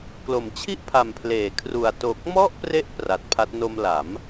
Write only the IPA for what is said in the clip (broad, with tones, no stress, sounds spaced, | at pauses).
k l o˩˦ m t͡ɕʰ i˥˩ ʔ pʰ a˨˩ m pʰ l eː˩˦ kʰ r u˨˩ a̯ t o˨˩ k̚ m ɔ˥˩ ʔ p r e˦˥ ʔ p r a˨˩ t̚ pʰ a˦˥ t̚ n o˧ m l a˩˦ m